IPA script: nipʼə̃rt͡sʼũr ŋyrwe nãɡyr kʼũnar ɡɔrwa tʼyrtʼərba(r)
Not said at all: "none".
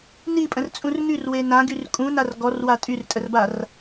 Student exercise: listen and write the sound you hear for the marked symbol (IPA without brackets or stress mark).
r